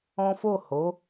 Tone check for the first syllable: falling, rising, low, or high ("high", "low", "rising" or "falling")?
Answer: high